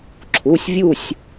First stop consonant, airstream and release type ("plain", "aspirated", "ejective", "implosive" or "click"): click